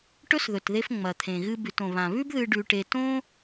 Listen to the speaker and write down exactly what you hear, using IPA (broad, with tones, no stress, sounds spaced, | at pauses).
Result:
ʈ ɵ˥ s ð ɵ˩ t ð e˧ f ŋ͡m ɐ˩ t̪ʰ ẽ˩ ɣ ɨ˧ b ʉ˩ t õ˩ β ã˩ β ʉ˥ b ð ɨ˧ ɖ ʉ˧ ʈ e˧ t õ˥